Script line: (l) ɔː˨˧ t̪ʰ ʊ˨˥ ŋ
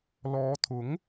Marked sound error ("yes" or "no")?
no